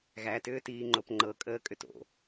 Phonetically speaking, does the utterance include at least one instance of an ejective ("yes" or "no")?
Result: yes